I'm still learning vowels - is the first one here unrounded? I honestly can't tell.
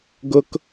no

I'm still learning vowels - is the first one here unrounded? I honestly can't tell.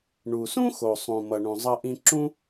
no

